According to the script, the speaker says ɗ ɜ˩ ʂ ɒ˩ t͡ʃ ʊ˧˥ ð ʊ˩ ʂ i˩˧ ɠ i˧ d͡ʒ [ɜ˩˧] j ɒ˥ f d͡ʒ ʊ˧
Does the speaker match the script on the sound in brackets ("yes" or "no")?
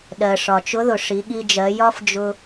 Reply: yes